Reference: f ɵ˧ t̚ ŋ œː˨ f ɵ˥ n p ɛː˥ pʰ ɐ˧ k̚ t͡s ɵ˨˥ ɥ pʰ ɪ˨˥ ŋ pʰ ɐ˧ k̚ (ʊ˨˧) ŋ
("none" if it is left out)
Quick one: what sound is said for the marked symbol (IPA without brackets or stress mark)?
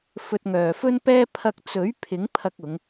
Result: ʊ˨˧